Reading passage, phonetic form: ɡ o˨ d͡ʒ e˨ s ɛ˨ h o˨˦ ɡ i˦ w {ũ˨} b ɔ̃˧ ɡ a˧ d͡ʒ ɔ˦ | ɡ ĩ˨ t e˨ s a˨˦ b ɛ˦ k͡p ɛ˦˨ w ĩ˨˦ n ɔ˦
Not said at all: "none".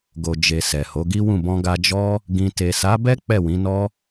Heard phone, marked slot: ũ˦˨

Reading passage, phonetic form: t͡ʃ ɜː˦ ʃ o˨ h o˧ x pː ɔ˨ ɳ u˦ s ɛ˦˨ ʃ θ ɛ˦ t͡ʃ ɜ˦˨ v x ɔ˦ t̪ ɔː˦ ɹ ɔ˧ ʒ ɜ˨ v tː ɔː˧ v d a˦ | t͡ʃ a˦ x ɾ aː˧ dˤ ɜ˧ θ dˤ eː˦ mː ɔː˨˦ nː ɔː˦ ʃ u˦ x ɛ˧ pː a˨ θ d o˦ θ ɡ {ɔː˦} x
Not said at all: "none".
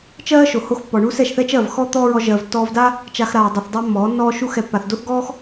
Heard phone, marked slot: ɔː˦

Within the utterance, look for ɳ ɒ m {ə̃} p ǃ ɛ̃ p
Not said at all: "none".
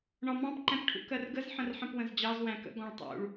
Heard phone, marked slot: ɑ̃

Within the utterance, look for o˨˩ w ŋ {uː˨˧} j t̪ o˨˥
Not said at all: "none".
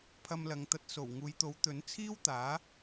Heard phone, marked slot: uː˨˧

